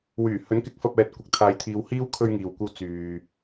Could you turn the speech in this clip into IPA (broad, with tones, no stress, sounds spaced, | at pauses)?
w yː˨˩ h ɵ˨˥ n k ɪ˨˥ k̚ f ɐ˧ p̚ ɛː˨ t̚ kʷ ɪ˨ k̚ t̪ʰ aː˨˧ j t̪ʰ iː˨ w h iː˥ w kʰ ɵ˥ ɥ ŋ iː˨ w kʷ ɐ˥ w t͡s yː˨